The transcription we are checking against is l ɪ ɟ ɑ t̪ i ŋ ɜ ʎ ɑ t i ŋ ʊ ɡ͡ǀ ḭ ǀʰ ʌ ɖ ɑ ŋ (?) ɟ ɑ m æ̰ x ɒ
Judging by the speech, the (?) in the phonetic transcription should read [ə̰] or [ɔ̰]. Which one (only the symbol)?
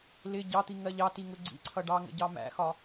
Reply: ə̰